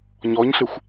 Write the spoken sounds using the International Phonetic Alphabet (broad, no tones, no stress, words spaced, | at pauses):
ɲɔɲɬɪxʷ